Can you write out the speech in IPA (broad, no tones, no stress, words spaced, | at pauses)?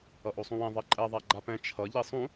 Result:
ʌʔosˤũwẽ ðˤeǃʼɛ ðˤaɡ͡ǃapɛ̃ t͡ʃʰʌ ʎisˤũ